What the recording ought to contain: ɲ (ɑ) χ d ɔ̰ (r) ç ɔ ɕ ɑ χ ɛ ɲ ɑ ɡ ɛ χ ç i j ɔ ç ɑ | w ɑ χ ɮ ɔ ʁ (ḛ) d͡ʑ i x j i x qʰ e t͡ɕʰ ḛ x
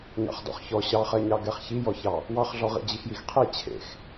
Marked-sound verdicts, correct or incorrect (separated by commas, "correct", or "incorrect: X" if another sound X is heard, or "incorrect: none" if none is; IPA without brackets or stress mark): incorrect: ɑ̰, incorrect: χ, incorrect: ḭ